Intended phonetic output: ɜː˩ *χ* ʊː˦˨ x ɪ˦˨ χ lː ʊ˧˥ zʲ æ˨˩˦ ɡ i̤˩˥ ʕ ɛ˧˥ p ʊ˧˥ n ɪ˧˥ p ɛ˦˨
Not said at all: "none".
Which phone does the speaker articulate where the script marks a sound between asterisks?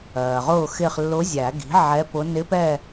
ʁ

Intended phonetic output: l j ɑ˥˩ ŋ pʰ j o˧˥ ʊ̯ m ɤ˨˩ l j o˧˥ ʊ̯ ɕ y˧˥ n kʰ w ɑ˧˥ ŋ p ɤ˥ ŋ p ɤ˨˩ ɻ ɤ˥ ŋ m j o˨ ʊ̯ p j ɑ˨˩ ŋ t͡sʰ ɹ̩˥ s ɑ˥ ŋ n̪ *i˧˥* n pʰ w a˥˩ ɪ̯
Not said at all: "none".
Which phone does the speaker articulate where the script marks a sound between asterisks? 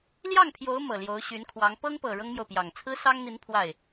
i˧˥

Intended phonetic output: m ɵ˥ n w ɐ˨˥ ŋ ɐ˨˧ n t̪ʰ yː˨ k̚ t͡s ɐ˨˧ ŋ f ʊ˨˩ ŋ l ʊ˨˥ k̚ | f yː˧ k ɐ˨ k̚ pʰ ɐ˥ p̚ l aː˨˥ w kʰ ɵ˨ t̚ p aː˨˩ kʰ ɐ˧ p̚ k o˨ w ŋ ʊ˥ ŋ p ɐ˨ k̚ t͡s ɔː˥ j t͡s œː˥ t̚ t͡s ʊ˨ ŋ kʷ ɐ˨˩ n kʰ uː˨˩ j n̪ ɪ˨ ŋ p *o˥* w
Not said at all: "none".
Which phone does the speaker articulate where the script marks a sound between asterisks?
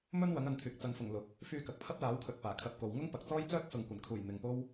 o˥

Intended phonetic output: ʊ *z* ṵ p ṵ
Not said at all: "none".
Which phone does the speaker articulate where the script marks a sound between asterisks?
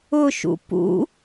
ʃ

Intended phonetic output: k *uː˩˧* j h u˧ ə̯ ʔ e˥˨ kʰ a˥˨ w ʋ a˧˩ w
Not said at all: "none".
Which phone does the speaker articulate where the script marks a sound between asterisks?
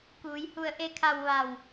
uː˩˧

